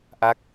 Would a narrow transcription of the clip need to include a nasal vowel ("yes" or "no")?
no